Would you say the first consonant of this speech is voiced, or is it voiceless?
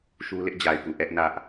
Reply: voiceless